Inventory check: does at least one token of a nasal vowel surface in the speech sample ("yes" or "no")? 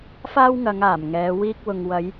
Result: no